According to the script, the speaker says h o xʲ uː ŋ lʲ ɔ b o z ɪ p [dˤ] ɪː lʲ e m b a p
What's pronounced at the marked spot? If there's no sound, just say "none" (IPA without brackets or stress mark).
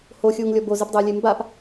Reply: dˤ